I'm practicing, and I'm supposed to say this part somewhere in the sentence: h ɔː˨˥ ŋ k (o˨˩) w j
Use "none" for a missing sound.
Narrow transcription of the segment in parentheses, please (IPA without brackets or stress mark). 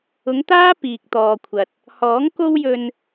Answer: o˥